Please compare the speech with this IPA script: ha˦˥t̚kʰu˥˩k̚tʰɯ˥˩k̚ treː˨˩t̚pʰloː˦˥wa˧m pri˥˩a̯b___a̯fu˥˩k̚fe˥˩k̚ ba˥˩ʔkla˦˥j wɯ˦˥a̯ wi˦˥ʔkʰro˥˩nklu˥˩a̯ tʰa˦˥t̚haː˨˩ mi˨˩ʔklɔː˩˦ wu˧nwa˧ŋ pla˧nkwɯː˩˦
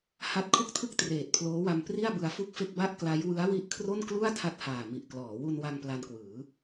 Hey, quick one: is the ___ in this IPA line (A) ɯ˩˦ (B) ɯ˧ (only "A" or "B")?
B